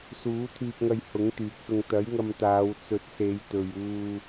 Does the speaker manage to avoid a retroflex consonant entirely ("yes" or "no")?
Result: yes